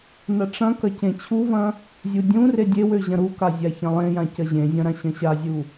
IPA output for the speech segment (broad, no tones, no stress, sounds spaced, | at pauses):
n ɐ ʈ͡ʂ ɐ̃ k ɐ c ẽ t͡ɕʰ u v ɐ̃ | zʲ u dʲ ũ r e dʲ e w ø ʑ ɐ̃ ɾ u k a zʲ a ç ɐ̃ lˠ ẽ j ã c ɐ ʑ ẽ zʲ ɐ̃ ɾ ã ɕ ɐ̃ ɕ a zʲ u